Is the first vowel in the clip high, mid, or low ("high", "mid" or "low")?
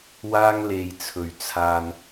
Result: low